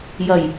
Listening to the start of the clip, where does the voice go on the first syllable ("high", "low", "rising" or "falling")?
low